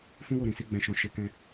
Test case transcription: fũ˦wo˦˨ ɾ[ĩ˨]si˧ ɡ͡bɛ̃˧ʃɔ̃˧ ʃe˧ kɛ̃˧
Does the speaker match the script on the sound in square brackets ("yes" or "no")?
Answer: yes